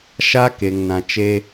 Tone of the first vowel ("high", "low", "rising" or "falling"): high